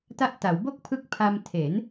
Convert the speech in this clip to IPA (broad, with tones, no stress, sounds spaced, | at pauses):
t a˦˥ ʔ t a˩˦ w b o˥˩ k̚ pʰ ɯ˦˥ k̚ pʰ a˧ m tʰ e˩˦ n